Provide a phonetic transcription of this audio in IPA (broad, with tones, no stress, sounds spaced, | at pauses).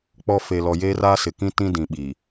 k͡p ɔ˦ f e˨ l ɔ˨ j eː˦ r a˦ s ɪ˨ k ĩ˦ t ĩ˦ d ĩ˨ ɓ i˨